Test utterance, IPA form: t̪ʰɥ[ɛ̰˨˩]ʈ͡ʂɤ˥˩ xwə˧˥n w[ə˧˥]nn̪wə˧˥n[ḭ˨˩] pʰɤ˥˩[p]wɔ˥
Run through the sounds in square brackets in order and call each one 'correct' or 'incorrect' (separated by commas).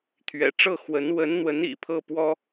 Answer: correct, correct, correct, correct